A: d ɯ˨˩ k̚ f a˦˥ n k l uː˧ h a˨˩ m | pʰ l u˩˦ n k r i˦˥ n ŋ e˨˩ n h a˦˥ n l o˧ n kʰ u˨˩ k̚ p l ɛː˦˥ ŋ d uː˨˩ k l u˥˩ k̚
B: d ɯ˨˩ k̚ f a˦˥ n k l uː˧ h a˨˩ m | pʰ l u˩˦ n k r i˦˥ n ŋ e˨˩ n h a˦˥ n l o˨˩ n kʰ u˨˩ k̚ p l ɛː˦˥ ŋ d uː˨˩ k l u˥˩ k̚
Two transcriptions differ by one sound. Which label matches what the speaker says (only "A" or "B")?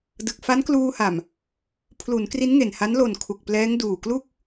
B